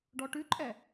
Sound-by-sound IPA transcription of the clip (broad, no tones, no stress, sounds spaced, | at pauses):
ɖ ɔ ʈ ʉ ǃʼ ɛ